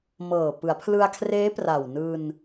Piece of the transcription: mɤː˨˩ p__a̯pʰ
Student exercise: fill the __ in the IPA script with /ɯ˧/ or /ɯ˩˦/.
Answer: ɯ˩˦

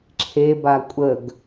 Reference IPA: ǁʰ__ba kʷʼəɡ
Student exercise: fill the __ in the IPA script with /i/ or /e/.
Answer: e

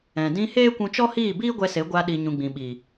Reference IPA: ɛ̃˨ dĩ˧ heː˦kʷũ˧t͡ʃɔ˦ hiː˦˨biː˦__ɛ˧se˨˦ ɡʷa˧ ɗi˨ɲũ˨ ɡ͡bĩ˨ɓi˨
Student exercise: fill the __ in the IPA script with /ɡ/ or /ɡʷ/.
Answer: ɡʷ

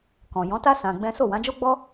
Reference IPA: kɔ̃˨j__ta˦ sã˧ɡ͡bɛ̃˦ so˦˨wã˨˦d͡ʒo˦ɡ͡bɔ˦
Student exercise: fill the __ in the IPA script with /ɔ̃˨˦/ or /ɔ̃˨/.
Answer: ɔ̃˨˦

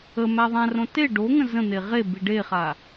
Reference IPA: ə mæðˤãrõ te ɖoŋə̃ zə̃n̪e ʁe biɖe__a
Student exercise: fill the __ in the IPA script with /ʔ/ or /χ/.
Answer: χ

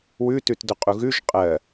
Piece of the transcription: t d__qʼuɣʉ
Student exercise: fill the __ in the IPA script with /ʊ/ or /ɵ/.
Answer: ʊ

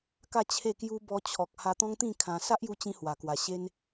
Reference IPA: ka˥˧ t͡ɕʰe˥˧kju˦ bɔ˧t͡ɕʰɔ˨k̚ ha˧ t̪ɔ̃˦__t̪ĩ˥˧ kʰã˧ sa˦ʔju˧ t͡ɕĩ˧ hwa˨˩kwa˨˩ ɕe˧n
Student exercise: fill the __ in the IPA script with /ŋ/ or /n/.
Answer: ŋ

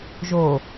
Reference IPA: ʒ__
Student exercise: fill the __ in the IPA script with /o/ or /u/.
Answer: o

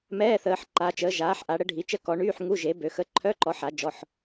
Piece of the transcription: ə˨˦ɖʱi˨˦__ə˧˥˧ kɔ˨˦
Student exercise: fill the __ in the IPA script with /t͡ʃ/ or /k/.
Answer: t͡ʃ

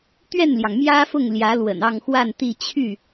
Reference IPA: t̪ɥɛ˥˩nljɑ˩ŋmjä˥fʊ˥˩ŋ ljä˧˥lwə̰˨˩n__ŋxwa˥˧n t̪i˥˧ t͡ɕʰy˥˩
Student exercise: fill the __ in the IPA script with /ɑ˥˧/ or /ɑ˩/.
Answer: ɑ˥˧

